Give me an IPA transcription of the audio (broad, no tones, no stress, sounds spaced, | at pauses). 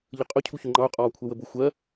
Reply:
ʎ ə qʼ ʊ cʰ u ç ʊ ŋ͡ǃ ɑ ʊ̯ qʼ ɒː kʷʰ ɛ w ə b ʊ xʷ ɜ